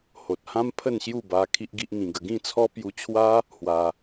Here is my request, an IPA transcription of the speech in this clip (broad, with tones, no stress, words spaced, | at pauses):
ho˨t̚hã˦m pʰə˥˧nɕju˥˧ba˧ kʰi˦ʔɡi˦ʔŋĩ˧ɡə˧ ɡĩ˥˧t͡sʰɔ˦ pju˧t͡ɕʰwa˦ | hwa˧